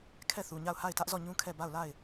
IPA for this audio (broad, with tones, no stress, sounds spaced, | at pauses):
kʰ ɛ˦˨ θ u˨ ɲ a˦˨ ʊ̯ h a˦˨ ɪ̯ t ä˦ ʔ z ɔ˦˨ ɲ ũ˦ kʰ ɛ˦˨ b a˦˨ ʊ̯ l a˦˨ ɪ̯